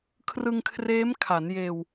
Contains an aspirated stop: yes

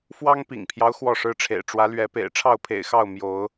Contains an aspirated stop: yes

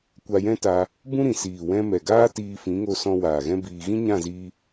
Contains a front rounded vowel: no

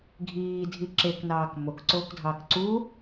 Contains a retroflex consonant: no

